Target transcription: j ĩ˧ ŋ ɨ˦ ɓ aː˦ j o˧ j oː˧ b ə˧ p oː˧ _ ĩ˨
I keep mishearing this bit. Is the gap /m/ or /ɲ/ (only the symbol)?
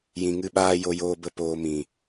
m